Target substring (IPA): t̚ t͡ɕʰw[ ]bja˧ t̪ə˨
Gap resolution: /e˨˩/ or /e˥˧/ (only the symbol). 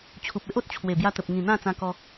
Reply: e˨˩